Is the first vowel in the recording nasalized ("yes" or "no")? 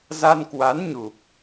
no